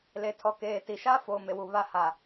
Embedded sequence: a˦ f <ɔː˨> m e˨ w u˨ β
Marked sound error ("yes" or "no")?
yes